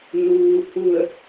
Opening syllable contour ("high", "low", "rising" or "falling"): low